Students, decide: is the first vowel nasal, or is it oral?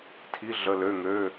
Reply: oral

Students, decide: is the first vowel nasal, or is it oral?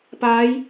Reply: oral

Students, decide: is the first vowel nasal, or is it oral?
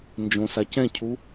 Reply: nasal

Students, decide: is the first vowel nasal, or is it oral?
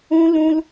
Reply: nasal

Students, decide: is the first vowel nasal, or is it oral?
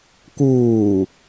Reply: oral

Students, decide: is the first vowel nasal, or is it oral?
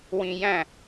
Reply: nasal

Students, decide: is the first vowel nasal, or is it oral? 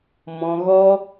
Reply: nasal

